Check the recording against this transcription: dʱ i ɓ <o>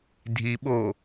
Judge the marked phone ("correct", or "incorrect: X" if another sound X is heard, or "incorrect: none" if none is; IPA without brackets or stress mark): correct